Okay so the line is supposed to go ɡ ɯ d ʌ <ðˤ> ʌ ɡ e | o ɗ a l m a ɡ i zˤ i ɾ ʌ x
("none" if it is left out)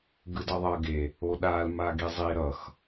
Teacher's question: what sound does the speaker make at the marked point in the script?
ðˤ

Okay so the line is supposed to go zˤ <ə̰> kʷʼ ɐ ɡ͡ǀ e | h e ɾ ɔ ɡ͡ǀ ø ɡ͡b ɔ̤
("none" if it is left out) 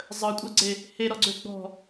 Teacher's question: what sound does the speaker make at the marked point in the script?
ə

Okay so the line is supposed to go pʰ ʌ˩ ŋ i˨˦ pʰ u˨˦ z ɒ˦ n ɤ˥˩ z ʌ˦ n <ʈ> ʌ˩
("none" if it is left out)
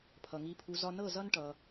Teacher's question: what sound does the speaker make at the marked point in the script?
ʈ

